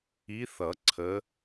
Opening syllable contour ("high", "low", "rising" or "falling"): rising